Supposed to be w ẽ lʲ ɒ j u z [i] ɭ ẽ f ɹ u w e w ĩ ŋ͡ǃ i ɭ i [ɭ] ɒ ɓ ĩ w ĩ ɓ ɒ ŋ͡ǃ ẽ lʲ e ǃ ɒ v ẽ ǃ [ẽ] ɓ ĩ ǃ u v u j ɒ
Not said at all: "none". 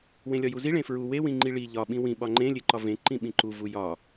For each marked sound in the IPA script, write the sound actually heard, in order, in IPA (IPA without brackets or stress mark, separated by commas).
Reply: i, ʎ, ĩ